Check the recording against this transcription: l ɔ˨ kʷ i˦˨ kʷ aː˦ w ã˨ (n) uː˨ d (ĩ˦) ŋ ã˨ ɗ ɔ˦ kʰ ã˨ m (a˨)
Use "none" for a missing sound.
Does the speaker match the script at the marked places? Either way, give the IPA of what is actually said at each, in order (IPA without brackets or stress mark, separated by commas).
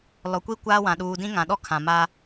ɗ, ĩ˦, a˦